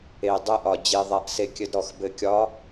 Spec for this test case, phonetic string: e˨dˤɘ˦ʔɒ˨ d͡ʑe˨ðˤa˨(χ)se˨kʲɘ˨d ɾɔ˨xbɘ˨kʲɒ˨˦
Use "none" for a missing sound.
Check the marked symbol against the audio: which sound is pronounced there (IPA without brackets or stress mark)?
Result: ʔ